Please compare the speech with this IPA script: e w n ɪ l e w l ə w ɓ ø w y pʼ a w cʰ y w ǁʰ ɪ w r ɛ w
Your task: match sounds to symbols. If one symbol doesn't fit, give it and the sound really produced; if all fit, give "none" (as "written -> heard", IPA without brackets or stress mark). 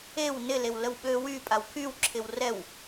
cʰ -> kʰ